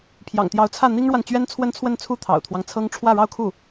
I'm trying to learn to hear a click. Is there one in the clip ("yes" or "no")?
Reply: no